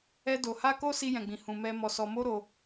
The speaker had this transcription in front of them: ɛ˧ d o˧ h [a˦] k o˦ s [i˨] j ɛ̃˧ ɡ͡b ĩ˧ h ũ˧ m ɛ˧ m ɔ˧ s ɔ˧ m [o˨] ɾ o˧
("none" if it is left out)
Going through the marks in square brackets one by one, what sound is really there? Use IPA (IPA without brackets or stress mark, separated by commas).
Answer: a˦, i˦, o˦